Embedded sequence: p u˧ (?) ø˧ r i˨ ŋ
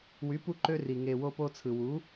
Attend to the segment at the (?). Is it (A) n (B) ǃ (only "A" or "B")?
B